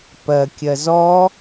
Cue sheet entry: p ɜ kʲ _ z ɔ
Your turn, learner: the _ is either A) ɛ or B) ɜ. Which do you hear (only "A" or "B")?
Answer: B